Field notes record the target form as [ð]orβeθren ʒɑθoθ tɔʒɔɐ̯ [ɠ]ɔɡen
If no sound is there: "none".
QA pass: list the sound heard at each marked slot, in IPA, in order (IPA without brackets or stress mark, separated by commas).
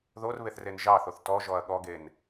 ð, ɠ